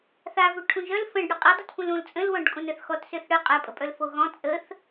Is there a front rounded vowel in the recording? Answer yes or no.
yes